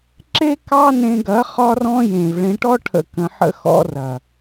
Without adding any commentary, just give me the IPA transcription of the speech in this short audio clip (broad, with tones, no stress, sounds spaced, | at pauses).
ǁ e˦ k ɑ˦ n ẽ˧ ɡ ɐ˨˦ χ ɒ˦ r ɔ̃˦ j ẽ˨ v ɭ ẽ˧ ʈ ɔ˦ ʈʰ ə̰˧ k ə̃˧ ħ ə̰˦ x ɔ̰˦ r ɐ˨